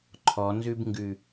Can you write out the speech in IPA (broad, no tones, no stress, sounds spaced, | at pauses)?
ǃʰ ɔ n z ʉ b ŋ ɡ ʉ